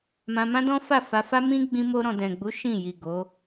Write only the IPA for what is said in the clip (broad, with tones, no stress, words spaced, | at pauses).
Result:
mã˧mã˦dɔ̃˦fa˦˨ fa˧fa˦mĩ˦ ɡ͡bĩ˧mo˧ɾɔ̃˨ dɛ̃˨ɡ͡bu˨˦ ʃĩ˦˨ ji˨ ɡo˨˦